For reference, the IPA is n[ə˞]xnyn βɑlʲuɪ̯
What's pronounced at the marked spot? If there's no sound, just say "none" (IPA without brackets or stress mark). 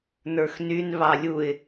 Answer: ə˞